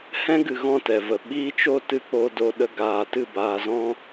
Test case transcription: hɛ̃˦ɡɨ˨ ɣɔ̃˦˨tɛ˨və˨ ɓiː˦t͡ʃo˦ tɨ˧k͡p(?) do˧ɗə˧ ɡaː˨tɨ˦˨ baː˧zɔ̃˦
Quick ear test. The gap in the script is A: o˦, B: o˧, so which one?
B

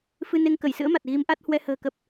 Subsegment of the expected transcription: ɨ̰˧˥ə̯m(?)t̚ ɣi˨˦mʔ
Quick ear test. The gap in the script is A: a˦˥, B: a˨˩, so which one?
B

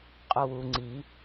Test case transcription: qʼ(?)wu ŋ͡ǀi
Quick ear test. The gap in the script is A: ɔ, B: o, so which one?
B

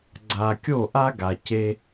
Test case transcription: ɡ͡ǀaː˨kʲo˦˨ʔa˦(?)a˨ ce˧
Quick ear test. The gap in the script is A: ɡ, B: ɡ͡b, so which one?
A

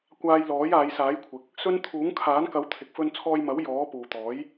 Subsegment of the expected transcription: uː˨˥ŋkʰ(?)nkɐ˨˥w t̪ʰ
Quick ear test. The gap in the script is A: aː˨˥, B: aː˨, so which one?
A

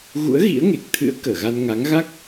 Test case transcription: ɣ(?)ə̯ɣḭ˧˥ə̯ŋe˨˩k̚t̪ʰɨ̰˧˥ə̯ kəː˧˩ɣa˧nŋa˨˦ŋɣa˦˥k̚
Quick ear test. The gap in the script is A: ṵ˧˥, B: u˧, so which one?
A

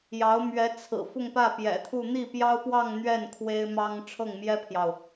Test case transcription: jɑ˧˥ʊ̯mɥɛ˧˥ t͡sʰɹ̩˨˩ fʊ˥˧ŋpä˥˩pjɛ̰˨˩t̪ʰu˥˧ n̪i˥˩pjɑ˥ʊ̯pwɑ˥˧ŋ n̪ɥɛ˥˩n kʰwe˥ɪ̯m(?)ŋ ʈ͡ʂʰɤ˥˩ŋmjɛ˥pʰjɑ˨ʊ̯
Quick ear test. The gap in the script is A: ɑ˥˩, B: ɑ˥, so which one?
B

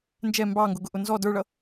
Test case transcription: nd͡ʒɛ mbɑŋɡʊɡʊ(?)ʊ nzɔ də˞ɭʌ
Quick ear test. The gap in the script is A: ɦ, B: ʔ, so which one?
B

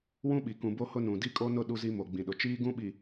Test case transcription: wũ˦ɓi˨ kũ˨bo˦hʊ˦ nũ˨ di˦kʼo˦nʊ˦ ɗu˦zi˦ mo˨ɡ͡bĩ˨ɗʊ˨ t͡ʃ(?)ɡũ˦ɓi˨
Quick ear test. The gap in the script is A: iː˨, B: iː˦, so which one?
B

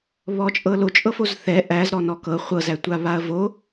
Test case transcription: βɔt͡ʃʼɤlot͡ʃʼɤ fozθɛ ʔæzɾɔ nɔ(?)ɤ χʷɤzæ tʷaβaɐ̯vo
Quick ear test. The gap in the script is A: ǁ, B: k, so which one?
B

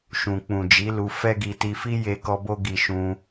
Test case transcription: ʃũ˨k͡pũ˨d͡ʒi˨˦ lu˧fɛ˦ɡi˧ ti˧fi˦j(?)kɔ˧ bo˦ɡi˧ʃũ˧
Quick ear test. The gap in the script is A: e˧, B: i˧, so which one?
A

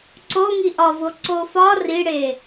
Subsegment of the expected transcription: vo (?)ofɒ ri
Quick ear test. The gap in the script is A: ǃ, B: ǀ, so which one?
B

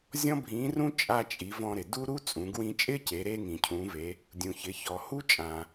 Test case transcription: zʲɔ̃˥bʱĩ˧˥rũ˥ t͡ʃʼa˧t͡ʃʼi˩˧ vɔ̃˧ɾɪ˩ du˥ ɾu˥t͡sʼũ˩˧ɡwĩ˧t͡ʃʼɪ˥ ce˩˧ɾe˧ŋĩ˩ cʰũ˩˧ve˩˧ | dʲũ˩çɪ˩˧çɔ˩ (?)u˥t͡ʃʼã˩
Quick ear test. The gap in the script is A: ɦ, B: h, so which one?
B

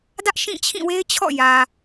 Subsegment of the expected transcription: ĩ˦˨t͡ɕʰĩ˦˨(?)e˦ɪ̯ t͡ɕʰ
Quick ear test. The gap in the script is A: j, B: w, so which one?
B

